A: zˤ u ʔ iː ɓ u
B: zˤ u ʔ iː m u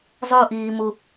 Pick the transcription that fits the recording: B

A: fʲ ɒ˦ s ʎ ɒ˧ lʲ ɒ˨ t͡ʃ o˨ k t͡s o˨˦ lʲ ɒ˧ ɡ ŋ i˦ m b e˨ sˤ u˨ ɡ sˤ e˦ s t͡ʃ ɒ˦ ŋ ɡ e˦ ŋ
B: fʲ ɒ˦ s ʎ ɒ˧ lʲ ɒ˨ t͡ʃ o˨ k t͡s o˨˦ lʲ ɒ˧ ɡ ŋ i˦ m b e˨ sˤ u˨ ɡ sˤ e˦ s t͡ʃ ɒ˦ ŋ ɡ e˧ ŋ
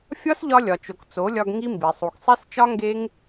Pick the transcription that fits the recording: A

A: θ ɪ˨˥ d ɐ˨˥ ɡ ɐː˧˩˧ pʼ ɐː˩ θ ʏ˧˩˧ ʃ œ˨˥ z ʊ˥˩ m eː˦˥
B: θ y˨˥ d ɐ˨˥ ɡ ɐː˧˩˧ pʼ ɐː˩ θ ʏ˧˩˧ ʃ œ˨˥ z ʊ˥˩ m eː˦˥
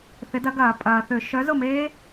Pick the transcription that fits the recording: A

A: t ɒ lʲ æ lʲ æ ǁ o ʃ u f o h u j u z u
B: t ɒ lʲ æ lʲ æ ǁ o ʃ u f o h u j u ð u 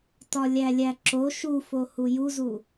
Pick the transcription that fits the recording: A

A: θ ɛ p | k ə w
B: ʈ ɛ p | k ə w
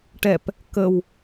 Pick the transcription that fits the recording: B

